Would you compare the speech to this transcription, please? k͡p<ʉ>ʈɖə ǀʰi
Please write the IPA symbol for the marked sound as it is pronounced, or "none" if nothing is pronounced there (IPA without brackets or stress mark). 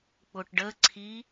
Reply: ʊ